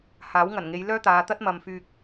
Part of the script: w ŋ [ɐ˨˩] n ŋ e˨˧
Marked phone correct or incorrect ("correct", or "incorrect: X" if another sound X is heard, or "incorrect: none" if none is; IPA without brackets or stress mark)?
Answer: correct